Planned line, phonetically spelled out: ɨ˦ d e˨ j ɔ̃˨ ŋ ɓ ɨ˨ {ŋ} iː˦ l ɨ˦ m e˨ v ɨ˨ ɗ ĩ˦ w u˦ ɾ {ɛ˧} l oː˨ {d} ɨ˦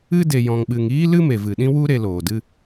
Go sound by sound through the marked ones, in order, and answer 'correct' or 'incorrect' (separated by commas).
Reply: correct, incorrect, correct